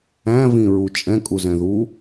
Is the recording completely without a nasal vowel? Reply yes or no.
no